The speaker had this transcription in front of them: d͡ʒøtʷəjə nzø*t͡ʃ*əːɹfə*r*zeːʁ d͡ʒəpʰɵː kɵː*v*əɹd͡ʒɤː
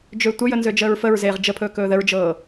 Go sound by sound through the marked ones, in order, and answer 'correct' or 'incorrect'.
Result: incorrect: d͡ʒ, incorrect: ɹ, incorrect: ð

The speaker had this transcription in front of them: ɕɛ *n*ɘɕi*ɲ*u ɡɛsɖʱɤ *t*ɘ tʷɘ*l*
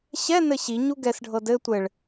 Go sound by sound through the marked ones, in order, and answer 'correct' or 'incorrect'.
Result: correct, correct, incorrect: d, incorrect: ɭ

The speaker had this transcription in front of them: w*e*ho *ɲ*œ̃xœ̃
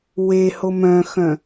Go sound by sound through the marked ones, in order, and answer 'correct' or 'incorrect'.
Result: correct, incorrect: m

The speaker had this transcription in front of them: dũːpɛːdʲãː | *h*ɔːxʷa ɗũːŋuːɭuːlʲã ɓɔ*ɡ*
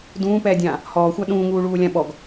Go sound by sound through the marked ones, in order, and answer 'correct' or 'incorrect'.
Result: correct, correct

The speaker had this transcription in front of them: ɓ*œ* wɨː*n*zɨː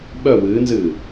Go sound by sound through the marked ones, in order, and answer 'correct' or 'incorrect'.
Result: correct, correct

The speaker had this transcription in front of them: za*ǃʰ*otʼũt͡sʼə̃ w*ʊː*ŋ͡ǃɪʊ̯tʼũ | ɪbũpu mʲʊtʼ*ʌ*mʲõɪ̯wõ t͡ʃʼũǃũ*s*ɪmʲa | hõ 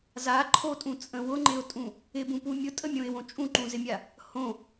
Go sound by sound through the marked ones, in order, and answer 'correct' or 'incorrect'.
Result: correct, incorrect: ʊ, incorrect: ə, incorrect: z

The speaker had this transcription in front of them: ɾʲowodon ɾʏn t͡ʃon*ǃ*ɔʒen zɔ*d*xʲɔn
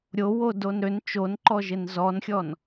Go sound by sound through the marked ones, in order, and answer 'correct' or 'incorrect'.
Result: correct, incorrect: n

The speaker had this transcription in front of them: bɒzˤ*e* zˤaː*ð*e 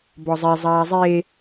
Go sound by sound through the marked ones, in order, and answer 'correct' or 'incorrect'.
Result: correct, incorrect: zˤ

